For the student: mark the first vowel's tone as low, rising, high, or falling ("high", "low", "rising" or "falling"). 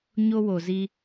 high